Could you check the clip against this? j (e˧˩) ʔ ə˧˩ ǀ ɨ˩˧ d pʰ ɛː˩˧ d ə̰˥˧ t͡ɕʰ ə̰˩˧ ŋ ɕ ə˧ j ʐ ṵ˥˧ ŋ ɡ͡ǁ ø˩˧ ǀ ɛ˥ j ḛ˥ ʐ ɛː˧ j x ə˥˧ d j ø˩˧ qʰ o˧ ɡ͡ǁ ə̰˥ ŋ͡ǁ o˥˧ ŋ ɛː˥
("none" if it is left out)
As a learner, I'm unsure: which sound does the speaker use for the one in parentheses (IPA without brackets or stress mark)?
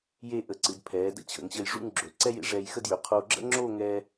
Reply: e˥˧